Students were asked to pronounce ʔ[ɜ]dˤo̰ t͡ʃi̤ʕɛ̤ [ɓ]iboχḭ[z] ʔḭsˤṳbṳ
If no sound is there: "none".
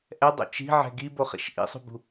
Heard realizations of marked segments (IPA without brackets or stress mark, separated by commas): ɛ, ɡ, ʃ